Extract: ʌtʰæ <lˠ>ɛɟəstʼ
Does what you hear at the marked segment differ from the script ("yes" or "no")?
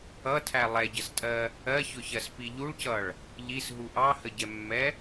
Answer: no